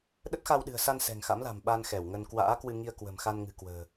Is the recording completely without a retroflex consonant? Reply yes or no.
yes